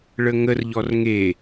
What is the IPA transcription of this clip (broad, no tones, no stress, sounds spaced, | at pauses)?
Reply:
ɭ ə ŋ ə r ʎ ɔ r ŋ e